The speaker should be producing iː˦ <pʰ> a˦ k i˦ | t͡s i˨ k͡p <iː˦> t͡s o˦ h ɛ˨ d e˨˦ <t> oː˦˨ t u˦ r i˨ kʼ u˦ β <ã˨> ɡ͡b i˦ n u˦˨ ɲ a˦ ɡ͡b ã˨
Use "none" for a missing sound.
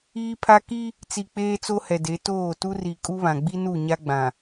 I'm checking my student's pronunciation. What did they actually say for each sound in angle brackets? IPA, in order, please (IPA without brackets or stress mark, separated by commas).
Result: pʰ, eː˦, t, ã˨